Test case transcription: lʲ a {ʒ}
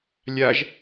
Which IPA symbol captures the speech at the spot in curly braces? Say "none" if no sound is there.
ʒ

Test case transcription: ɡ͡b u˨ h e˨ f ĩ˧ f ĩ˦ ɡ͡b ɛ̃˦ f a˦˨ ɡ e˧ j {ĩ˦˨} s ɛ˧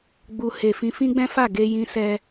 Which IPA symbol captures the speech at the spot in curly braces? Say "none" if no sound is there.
ĩ˧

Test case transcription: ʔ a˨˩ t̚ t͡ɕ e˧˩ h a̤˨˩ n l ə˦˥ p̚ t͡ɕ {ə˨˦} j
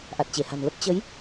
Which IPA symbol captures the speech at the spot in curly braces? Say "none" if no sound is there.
ə˨˦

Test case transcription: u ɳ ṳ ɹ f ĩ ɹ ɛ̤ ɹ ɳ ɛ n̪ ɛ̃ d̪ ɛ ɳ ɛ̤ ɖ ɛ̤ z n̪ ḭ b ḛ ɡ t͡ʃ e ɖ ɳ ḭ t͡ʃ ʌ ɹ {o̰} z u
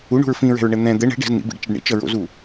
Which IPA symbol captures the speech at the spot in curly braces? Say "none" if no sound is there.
o̰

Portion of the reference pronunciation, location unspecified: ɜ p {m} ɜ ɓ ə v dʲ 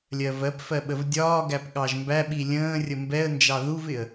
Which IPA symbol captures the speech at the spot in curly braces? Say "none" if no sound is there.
f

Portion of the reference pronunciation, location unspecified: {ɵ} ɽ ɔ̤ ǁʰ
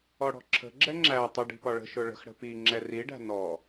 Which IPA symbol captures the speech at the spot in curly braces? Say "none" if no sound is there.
ɔ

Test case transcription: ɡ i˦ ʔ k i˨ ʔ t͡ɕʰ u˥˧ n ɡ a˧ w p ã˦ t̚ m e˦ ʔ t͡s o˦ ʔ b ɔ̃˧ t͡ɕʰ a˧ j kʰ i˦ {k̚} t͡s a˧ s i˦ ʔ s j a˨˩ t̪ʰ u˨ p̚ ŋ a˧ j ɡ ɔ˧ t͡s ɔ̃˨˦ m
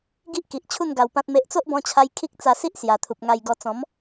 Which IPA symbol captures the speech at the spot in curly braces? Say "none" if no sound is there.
k̚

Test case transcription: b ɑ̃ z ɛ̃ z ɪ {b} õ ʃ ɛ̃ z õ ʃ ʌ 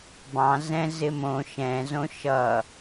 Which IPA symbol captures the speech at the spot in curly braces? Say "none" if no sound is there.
m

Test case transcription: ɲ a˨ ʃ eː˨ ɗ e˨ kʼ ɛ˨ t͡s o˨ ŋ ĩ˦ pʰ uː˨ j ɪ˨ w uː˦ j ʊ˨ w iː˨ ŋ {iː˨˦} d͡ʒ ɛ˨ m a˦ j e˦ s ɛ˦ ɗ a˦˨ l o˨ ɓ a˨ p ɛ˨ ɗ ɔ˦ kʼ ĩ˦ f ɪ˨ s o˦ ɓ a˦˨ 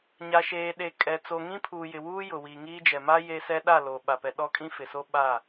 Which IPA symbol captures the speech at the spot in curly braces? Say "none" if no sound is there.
iː˦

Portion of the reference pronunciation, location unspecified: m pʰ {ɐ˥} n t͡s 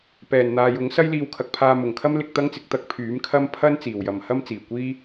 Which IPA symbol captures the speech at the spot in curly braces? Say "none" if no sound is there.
ɐ˥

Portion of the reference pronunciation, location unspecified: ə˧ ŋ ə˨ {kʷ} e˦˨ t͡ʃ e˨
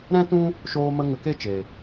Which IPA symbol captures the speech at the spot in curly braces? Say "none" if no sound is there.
k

